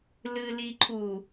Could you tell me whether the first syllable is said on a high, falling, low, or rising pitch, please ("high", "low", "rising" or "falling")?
low